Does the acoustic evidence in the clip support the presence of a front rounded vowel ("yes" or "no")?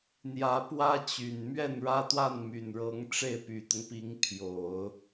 yes